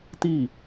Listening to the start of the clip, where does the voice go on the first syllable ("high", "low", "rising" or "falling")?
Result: falling